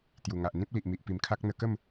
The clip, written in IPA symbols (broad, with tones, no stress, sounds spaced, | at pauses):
t̪ j u˨˩ ŋ a˨ ʔ n̪ ĩ˦ p̚ l i˨ ʔ m i˨ ʔ p i˨˩ m kʰ a˦ k̚ n̪ ə˧ k ə˥˧ m